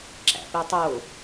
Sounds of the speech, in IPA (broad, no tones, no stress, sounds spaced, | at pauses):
ǁ æ̰ p i tˤ o